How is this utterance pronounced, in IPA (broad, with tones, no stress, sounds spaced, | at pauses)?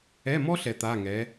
ɛ˧˥˧ m ɔ˥ ɬ ɛ˧˥ t̪ a˧˥˧ ŋ ɛ˧˥